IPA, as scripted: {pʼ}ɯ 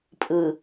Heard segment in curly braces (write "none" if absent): pʼ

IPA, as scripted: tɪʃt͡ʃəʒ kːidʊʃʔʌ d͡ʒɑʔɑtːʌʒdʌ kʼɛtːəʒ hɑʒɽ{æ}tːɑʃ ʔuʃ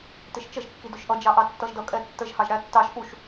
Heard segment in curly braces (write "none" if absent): æ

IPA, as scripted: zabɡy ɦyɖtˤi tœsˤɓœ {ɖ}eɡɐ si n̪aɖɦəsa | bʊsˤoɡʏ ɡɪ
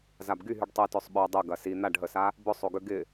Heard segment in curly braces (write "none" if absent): dˤ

